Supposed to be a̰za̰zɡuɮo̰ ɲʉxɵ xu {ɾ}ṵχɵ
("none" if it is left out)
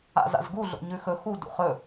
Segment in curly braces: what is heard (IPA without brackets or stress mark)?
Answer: d